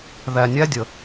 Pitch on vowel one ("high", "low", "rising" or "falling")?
low